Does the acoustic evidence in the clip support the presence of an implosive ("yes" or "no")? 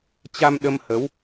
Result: yes